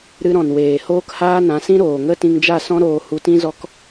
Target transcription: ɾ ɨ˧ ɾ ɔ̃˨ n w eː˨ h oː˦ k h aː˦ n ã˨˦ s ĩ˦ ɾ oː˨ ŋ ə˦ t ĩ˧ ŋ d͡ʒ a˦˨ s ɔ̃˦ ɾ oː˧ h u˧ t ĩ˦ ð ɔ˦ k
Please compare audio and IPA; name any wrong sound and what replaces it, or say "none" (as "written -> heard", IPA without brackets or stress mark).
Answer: ð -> z